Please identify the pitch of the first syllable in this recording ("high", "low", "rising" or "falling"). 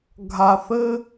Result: low